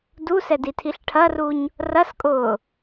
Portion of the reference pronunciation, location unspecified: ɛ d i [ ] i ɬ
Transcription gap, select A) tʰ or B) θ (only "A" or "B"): A